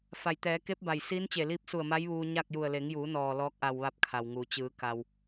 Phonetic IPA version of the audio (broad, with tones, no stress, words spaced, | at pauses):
fa˩jt̪ɛː˩˧ ke˧˥p̚ba˩j siː˧˥nt͡ɕe˧˩liː˧˥p̚su˧˩ə̯ ma˧˥jʋuː˧ ɲa˥˨k̚ju˧˩ə̯ le˩˧ŋjuː˩˧nɔː˩ lɔː˧˥k̚ʔa˧˩w ʋa˥˨p̚kʰa˩wŋuː˩ t͡ɕɯː˩˧ ka˩w